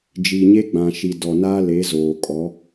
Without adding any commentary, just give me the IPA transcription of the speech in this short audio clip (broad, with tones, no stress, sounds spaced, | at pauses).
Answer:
d͡ʒ i˨ ɲ e˦ ɡ͡b ã˨ ʃ i˨ d ɔ˨ n aː˦ l e˨˦ z oː˨ kʼ ɔ˨˦